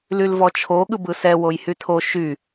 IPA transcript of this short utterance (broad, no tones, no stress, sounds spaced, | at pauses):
l y l v ɔ t͡ʃʰ o ɠ ɯ b ɯ s ɛ w o j h y tʰ o ʃ y